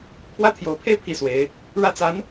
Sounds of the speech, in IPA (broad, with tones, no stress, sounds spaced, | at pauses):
pʰ w ä˥ t̪ʰ j o˧˥ ʊ̯ pʰ e˥˧ ɪ̯ pʰ i˥˩ s w e˧˥ ɪ̯ | ɻ ä˥ t͡s a˧˥ n